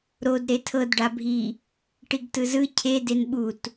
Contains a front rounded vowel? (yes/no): no